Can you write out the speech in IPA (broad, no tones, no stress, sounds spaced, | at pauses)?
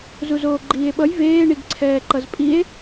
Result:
z u z oː ɡ͡ǃ iː e̯ ɓ ʌ j v eː ɳ i ɡ ǀʰ ɛː ǃ ʌ z pʼ i e̯